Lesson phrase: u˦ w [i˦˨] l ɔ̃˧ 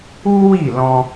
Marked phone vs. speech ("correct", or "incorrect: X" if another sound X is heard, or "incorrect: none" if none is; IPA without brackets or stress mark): correct